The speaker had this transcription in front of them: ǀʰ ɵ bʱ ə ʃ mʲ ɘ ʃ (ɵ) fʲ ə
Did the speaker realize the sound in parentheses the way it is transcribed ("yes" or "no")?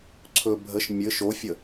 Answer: no